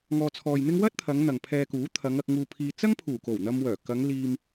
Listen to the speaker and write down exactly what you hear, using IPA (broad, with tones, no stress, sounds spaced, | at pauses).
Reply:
ŋ ɔː˧ t͡sʰ ɔː˧ j n̪ ɪ˥ ŋ w ɐ˥ t̚ t̪ʰ ɐ˨˧ ŋ n̪ ɐ˨ ŋ pʰ ɛː˧ k uː˨˥ t̪ʰ ɐ˨˧ ŋ ɐ˧ k̚ ŋ uː˧ pʰ iː˧ t͡s ɐ˥ ŋ pʰ uː˨˩ k o˨˩ w n̪ ɐ˧ m w œː˨˩ k ɐ˨˧ ŋ l iː˧ m